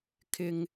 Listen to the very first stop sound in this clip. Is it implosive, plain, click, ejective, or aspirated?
aspirated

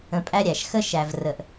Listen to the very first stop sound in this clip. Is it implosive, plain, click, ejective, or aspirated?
ejective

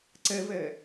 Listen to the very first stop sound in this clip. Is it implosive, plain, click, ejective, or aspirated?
click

